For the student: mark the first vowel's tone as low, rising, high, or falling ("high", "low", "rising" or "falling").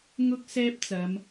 high